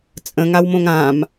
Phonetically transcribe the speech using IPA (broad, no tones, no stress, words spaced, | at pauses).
t͡sʼə̃ŋawmõŋ ãm